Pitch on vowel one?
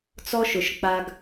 high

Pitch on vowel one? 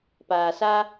low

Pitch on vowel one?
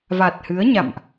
low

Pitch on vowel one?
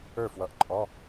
falling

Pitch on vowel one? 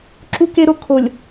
high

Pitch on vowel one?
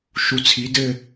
low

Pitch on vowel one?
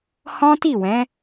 high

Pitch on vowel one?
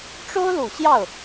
high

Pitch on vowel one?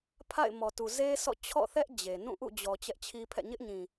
falling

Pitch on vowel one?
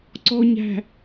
low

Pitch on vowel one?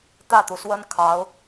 falling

